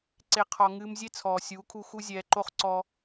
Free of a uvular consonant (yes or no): no